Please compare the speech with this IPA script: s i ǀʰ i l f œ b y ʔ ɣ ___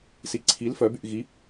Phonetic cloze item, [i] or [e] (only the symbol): i